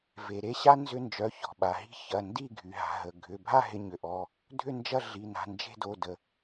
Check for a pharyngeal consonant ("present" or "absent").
absent